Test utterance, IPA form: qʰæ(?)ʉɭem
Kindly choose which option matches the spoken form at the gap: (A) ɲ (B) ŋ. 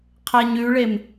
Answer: A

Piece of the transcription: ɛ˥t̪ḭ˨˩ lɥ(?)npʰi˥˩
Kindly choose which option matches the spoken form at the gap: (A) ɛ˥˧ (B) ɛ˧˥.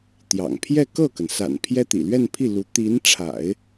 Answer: A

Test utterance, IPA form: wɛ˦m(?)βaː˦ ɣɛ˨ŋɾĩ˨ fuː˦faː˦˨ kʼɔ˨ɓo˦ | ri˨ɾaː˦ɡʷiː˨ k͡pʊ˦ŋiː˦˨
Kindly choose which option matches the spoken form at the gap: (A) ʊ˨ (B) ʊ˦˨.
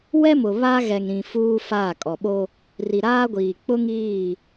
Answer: A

